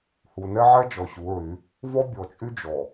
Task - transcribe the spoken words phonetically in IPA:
h u˨ n ɛ˦ ʕ ɛ˦ d͡ʒ ɔ˨ ɕ u˨˦ ɹ y˨˦ | v ɔ˦ bʲ ɔ˨ t͡ʃʼ y˦ d͡ʒ ɔ˨

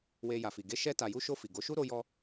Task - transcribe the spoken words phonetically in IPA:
w e˧ j a˨ f i˨ ɡ e˧ ʃ ɛ˧ t a˨ j u˧ ʃ o˧ f i˨ ɡ o˨˦ ʃ u˦ ɾ o˧ j ɔ˧

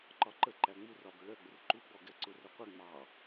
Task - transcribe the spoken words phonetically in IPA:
ǃ ɒ ǃ ə ǃ æ ŋ͡m u r ɒ b ə ɭ ɜ ɡ͡b ə r ǃ u ɡ͡b ɔ ɡ ɛ ǀ ʊ r ʌ qʷ ɪ ŋ͡m ɑ

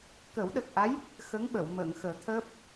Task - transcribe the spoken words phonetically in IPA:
k ə˨˩˦ w ɗ ə˨˩ k̚ ʔ a˧˥ j | x ə˧˥ ŋ ɓ ə˨˩˨ w m əː˨˩˨ ŋ x əː˨˩˦ t̪ʰ əː˦˥ p̚

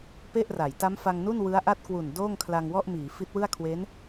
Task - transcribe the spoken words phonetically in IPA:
p e˥˩ ʔ r a˩˦ j t a˦˥ m f a˧ ŋ n u˥˩ n w ɯ˦˥ a̯ ʔ a˥˩ t̚ k w u˨˩ n d oː˥˩ ŋ kʰ l a˧ ŋ w ɔ˥˩ ʔ m iː˩˦ f i˦˥ t̚ w ɯ˥˩ a̯ kʰ w e˦˥ n

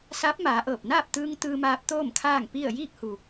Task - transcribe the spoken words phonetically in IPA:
s aː˧˥ p̚ m aː˩˧ ʔ ɤː˧˩ p̚ n aː˥˨ p̚ t̪ ɯː˧ ŋ t̪ ɯː˧ m aː˧ p̚ t̪ oː˥˨ m kʰ aː˥˨ ŋ p i˥˨ ə̯ j iː˥˨ k̚ h u˩

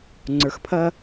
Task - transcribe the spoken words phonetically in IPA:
ŋ͡ǀ ə˞˨ x pʰ ɐ˦

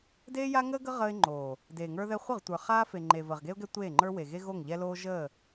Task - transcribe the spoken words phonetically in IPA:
d eː˦ j a˦ ŋ əː˦ ɡ ə˦ ʁ əː˦ ɪ̯ ŋ͡ǃ oː˨ | d eː˨ ŋ ə˞˦ ð ɛ˦ χʷ ə˦˨ ʁ tʷ ə˞˨ χ aː˦ f e˨ ŋ͡ǃ e˨ v əː˨ ʁ ɡ e˦ ʊ̯ ɡ ɛ˦ tʷ eː˦˨ ŋ͡ǃ ə˞˦ w e˨ ɣ e˦ ɣ o˦˨ ŋ ʎ ɛ˦ l oː˦ ʒ əː˦˨

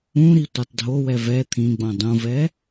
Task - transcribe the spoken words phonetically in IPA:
ũ ɾ i tʷ e tˤ dʱ o w ɛ v ɛ t̪ʰ ĩ ɡ͡b õ dˤ ũ v ɛ

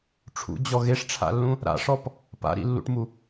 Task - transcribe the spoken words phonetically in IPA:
ʈ͡ʂʰ ṵ d͡ʑ ɔ ɣ e ʂ ʈ͡ʂʰ a̰ lː ũ | ɾ a̰ ʂ ɔ p | p a̰ ɾ ḭ lː ṵ ʈ m u

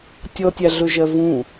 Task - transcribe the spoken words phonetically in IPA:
tʲ ɔ tʲ a ɮ ɵ ʒ ɜ v ũ

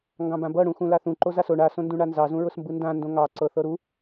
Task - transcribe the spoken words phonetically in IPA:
ŋ ɡ ɑ̃ b ã b ɤ ɽ ũ x ũ l a θ ũ ǃ o z a s o ɳ a s õ n d ũ ɳ a n z ɑ z ũ ɹ ʊ s m b ɯ n d ã n d õ ŋ ɑ ǀ ɤ θ ɤ ɾ u

